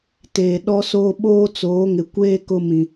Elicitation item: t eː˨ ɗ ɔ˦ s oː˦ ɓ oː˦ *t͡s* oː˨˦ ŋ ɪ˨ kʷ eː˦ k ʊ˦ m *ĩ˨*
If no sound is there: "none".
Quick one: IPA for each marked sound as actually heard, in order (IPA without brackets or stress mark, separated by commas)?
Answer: t͡s, ĩ˨